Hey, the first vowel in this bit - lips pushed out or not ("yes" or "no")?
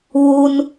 yes